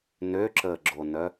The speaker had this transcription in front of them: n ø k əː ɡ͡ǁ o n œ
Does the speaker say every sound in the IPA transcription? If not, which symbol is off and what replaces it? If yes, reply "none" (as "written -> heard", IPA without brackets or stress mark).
k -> ǁ